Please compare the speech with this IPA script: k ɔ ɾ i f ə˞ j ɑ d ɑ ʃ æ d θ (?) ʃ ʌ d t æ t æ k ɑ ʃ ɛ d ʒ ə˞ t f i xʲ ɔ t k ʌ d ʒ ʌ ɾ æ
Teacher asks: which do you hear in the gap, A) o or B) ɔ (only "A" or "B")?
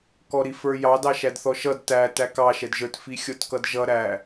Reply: B